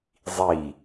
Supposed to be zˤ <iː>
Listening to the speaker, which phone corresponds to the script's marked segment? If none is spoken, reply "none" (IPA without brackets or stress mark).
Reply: i